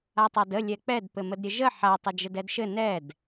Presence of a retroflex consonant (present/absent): absent